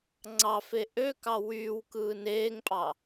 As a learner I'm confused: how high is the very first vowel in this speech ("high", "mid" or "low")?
low